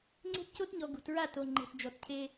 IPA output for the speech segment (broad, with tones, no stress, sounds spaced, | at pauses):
ŋ͡ǀ e̤˦ t c o˦ t ɲ ɔ˨ ɡ ṳ˨ t ɹ a˦˨ t o˨ ŋ͡ǃ e̤˨ t d͡ʒ ɔ˨ t cʰ e˦